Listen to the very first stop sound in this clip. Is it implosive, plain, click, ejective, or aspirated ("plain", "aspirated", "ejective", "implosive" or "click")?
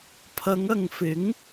aspirated